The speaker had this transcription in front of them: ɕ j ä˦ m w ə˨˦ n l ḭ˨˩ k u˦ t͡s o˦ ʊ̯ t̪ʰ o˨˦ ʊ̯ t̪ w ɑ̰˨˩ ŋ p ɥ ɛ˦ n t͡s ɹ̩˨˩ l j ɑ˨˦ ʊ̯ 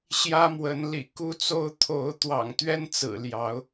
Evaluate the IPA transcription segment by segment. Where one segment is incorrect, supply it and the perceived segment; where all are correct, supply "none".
p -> t̪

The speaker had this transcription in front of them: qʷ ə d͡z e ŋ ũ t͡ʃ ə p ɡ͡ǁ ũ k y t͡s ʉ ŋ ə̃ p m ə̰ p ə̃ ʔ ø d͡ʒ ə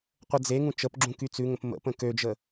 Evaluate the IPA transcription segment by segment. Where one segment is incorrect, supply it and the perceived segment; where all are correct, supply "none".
ʔ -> k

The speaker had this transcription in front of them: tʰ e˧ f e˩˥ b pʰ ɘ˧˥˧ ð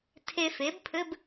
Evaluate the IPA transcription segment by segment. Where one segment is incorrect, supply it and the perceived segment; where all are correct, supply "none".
ð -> b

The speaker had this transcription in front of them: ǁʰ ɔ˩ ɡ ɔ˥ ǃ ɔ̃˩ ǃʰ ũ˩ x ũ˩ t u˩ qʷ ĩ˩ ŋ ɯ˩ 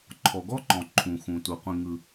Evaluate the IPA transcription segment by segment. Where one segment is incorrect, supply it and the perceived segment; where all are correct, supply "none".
ǁʰ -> ǃʰ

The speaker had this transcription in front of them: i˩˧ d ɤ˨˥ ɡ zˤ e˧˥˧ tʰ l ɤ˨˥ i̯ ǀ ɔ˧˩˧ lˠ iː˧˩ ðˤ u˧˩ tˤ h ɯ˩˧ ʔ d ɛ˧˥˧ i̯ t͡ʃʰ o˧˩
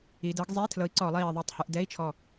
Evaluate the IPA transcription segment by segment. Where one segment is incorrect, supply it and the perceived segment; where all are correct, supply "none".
o˧˩ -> ɔ˧˩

